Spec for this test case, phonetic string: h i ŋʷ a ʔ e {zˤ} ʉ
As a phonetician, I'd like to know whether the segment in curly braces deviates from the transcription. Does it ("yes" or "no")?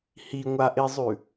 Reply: no